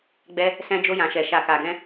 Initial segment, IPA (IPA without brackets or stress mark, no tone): ɡ͡b